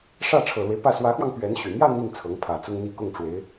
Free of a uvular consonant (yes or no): yes